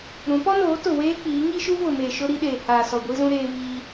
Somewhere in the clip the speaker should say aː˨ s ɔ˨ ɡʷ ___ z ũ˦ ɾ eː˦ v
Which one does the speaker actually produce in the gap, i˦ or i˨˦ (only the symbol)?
i˦